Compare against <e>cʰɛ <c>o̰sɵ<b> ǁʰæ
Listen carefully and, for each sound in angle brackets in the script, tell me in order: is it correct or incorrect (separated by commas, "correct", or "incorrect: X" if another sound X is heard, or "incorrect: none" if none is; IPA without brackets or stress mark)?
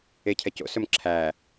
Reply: correct, correct, incorrect: m